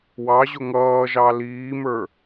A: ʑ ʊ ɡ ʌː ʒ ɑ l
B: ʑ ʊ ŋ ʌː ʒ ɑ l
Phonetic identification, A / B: B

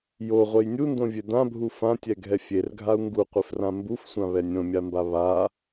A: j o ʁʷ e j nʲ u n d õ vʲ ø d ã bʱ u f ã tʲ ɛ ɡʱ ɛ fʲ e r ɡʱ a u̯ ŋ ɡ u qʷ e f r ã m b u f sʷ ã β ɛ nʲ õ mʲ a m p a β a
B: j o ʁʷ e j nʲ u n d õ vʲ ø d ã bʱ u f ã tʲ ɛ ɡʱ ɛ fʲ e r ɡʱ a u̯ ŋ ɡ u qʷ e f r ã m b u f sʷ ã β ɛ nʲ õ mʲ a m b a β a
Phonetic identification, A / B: B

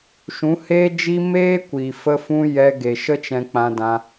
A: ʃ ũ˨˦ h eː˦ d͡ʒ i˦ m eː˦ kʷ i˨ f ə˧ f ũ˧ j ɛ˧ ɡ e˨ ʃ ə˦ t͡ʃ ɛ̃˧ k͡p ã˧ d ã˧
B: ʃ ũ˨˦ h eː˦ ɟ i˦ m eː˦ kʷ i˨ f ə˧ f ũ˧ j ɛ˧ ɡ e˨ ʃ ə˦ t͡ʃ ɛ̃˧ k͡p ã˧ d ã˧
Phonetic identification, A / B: A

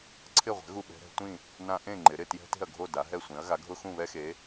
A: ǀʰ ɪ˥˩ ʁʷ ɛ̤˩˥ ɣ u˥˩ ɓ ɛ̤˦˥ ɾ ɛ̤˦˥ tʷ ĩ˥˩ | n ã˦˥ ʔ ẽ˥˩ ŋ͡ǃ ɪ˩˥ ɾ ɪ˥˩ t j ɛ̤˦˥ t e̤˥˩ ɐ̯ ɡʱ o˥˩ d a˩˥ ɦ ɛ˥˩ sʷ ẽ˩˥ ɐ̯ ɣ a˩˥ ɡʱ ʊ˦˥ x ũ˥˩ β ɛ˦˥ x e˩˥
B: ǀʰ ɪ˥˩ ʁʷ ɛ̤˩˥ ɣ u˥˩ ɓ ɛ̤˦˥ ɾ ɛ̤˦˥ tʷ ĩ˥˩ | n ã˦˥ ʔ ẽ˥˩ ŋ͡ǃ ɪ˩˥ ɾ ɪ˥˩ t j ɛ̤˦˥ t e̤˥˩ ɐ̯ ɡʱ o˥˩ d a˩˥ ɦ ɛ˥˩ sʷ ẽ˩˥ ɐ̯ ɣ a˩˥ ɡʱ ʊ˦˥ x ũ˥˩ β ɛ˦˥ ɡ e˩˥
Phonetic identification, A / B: A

